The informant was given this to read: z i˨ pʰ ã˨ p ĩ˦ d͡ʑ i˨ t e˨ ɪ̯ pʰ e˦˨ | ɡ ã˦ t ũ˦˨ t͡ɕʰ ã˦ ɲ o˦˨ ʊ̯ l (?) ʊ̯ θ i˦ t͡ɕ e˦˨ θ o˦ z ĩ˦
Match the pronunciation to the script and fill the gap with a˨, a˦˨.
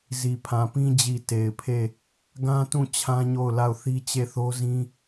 a˦˨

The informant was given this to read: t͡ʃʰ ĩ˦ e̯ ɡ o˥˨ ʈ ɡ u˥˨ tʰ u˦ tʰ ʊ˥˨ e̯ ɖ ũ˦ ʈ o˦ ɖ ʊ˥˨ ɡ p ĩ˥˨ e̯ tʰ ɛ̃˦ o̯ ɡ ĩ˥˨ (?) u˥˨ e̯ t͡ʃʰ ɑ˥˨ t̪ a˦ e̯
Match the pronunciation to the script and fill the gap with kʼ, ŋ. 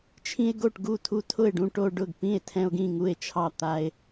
ŋ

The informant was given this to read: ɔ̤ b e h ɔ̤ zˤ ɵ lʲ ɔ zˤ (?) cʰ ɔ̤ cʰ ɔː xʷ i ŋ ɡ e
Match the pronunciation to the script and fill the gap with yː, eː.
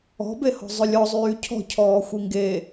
yː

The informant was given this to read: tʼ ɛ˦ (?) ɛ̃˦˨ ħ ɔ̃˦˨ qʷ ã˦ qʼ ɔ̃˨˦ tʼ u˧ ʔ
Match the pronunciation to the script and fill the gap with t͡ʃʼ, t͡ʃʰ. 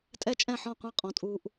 t͡ʃʼ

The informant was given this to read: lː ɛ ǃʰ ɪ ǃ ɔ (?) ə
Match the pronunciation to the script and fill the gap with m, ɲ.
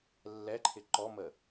m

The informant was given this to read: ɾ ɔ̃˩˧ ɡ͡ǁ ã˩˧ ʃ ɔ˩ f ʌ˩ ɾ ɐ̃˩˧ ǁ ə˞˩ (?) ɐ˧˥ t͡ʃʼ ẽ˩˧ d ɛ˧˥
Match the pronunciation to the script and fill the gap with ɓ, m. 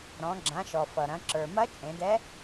m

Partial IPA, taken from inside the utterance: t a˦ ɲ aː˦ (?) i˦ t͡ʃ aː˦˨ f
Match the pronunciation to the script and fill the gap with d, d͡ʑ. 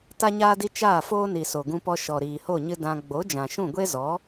d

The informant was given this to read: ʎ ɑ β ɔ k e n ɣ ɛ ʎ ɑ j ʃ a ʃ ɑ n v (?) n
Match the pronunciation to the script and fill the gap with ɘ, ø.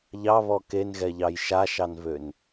ø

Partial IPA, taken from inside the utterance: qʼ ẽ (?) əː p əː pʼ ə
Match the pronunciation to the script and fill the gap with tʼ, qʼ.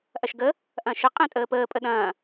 tʼ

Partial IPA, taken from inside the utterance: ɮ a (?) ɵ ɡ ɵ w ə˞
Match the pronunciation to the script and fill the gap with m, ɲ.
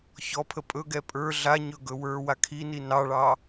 ɲ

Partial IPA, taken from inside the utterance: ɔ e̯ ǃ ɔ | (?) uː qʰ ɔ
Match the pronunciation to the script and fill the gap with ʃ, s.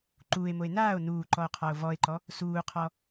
s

